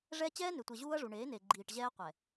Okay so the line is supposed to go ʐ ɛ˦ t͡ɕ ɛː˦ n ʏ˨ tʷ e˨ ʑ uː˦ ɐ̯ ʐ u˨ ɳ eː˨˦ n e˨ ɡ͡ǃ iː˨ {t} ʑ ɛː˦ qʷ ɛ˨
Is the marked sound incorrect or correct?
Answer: incorrect